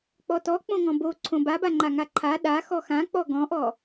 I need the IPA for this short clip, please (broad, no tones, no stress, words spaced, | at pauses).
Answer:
k͡pɔtɔ k͡põŋɔ̃bo ǀʰõbabaŋ͡ǃa ŋaǃʰa ɗa xɔxã k͡pɔɡɔ̃ʔɔ